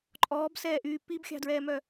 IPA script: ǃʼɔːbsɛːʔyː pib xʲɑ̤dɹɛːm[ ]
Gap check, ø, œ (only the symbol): œ